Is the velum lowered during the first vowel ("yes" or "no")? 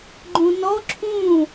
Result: yes